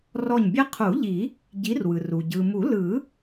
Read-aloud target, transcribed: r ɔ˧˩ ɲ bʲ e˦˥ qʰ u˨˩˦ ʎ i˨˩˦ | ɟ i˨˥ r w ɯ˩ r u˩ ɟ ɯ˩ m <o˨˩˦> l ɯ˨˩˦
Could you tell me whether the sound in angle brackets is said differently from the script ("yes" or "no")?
yes